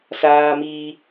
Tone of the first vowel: high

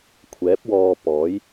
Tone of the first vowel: rising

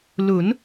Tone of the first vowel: rising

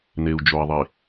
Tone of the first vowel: low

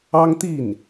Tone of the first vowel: high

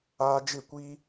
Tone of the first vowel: high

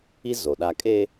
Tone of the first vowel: high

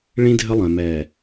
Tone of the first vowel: high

